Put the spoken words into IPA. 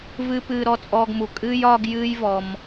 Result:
v ɨ˦ p ɨː˧ ɾ ɔ˦ t͡sʼ ɔː˦ ɡ m u˧ kʼ ɨː˦ j ɒː˦ ɡ j ɨː˦ j v ɔ˦ m

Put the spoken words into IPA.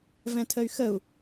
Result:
v ɛ̃ tʰ ə y̯ x ə u̯

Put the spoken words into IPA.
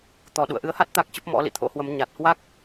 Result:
t̪ ɔ˨˩ ɗ ṵ˧˨ ə̯ ʔ ɨ˨˦ ə̯ h a˦˥ t̚ t̪ a˦˥ k̚ t͡ɕ ə˦˥ p̚ m ɔ̰˧˥ l ḭ˧˨ t̪ʰ o̰˧˥ h w ə˨˦ m ɲ a˨˩ t̚ h w a˦˥ k̚

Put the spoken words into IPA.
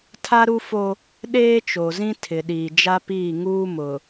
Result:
tʰ a˦ ɾ u˦ f o˦ | ɗ eː˦ t͡ʃ o˨ z ĩ˦ tʰ ɪ˨ ɗ iː˨ d͡ʒ a˦ p iː˦˨ ŋ uː˦ m ʊ˨

